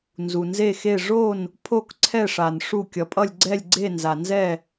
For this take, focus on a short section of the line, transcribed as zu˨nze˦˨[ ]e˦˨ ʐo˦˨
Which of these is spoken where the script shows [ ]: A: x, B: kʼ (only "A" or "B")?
A